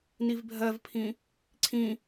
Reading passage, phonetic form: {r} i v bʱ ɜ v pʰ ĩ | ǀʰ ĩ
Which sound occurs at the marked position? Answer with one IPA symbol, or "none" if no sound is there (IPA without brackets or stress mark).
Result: n